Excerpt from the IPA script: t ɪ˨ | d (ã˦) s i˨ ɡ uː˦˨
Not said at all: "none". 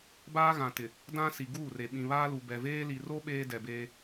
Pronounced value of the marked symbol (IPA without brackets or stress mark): ã˦